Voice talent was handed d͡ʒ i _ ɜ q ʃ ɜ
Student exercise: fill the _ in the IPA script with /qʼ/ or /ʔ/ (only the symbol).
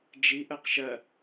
ʔ